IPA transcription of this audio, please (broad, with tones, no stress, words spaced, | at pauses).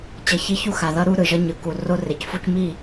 t͡ɕʌ˨çi˦çu˦ xa˨ðʌ˦ɾu˦ ɾɯ˨ʒʌ˦ɲɯ˨˦ ku˨ro˦re˨cfu˦c mi˦˨